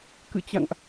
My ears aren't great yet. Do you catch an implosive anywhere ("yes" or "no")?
no